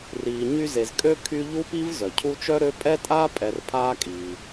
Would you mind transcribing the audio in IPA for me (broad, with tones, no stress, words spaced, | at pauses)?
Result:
riː˨ɲy˦ze˨z kʼø˥kʰy˦ʎu˥pi˥v zœ˩cʰu˦t͡ʃœ˥ɾø˦ pʼɛ˥tʼaː˥ pʼɛ˨r pʰaː˥kʼiː˨